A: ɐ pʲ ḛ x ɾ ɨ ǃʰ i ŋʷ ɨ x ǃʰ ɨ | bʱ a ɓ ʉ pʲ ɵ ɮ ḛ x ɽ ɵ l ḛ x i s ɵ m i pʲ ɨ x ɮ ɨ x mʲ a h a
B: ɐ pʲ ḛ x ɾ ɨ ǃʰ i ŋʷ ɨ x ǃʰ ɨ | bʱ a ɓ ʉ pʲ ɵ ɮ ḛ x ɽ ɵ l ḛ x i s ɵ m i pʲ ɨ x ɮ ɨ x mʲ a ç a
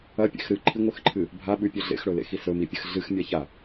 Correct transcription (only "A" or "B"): B